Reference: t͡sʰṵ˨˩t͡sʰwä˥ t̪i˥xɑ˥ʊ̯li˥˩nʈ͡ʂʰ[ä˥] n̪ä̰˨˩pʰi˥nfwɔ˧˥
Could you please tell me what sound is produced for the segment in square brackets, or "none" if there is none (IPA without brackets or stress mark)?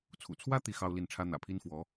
ä˥